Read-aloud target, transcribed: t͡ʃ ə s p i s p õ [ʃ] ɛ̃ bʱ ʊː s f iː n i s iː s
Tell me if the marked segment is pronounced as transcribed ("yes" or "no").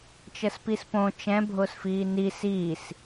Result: no